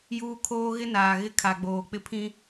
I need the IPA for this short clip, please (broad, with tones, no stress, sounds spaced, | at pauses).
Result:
j uː˦ kʰ oː˦ ɣ ɪ˦ n aː˨ ɣ ɪ˦ kʰ a˨ ɡ͡b oː˨ k͡p ɪ˦ pʰ ĩ˦